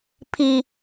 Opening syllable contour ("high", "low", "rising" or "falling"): high